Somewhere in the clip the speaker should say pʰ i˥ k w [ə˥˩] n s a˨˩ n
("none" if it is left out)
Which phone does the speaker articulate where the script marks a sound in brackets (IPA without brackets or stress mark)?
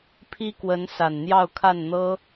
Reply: ə˧˥